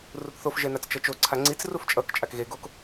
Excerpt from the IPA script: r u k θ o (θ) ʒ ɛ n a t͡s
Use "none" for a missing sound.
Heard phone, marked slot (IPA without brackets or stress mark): f